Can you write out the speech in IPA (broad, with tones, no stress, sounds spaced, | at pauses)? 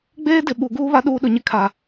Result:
ɡ͡b eː˦ d ɪ˨ ɓ u˨ ɡ uː˦ β a˦ ɗ uː˦ ɗ ʊ˨ ɲ ɪ˦ kʰ a˨